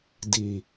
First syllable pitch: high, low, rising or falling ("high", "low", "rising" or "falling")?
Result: low